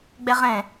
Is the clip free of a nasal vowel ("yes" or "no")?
no